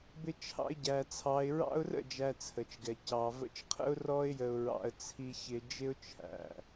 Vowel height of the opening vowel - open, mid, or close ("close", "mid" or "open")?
close